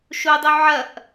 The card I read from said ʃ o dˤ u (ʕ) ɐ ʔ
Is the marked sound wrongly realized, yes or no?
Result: no